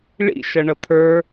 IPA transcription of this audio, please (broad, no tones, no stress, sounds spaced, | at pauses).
ɭ ḭ ʃ ʌ ɳ ʌ t̪ʰ ə˞